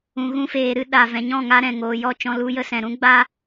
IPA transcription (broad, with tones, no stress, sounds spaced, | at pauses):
ũ˨ ɣ ũ˧ f eː˨ ɾ ɨ˧ ɗ a˨ v ɛ̃˨ ɲ ɔ̃˦˨ ŋ a˧ ɾ ɛ̃˨ ŋ oː˨ j ɔ˦˨ t͡ʃ ɔ̃˧ l u˧ j ə˧ s ɛ̃˨ ɾ ũ˦ ɡ͡b a˦